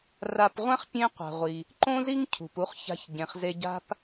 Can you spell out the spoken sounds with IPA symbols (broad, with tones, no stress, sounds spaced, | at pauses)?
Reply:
r a˧ p ʁʷ ɛ̃˥ χ pʲ ẽ˥ qʷ a̤˩ ʁʷ i˩ | ǃ õ˥ z i˥ ŋ cʰ ṳ˩ p u˧ χ ç a̤˧ ç ɟ ẽ˩ χ z e˧ ɟ a̤˥ p